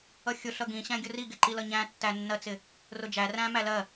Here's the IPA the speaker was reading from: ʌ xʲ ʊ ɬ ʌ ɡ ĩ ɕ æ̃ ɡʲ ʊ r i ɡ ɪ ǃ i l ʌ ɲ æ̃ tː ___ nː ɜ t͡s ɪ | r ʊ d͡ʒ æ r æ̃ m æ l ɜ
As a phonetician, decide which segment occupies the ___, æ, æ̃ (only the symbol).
æ